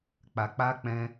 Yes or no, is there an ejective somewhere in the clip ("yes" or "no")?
no